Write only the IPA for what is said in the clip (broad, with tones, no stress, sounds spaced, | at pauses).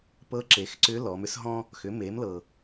p ɤ˧˥ ǁ e˩˧ x ǀ ʏ˧˥ l ɔ˩˧ m ʏ˧˥ s ɦ ɔ̃˥ | x ʏ˩˧ m e˩˧ m l ɤ˩